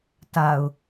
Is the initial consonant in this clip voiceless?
yes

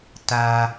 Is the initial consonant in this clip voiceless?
yes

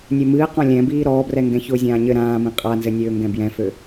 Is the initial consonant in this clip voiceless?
no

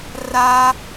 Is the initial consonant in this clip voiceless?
no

